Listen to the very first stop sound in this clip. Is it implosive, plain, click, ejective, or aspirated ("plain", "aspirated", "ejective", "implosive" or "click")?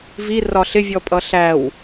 ejective